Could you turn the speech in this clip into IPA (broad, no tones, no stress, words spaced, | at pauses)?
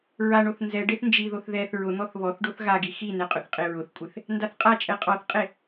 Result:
ɹaɳoθ nzɛɖeθ nd͡ʒiðoθ ðɛθ ɹʊn̪ɔθ βɔθ ɖoθɣaɡi xinɛ qʼʊθqʼeɹʊθkʷʼeθ | ndaθqʼat͡ʃʼɛ qʼɔθqʼe